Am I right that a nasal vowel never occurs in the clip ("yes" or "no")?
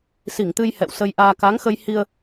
yes